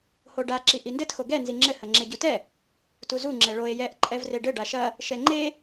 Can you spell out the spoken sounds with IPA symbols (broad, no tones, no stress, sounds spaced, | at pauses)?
h o ɖ a ǁ i ʔ i n d ɘ t x o ɡ ɛ n z i ŋ͡ǁ ɘ h ɐ ŋ͡ǁ e ɟ u t ɛ | t u z u ŋ͡ǁ ɛ ɭ o e̯ j ɛ ʔ ǃʼ ɛ v r e ɖ ɘ ɖ a ʃ ɐ | ʃ ɛ ŋ͡ǃ e